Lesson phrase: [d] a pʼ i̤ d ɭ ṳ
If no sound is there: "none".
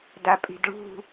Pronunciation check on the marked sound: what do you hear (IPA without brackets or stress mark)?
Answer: d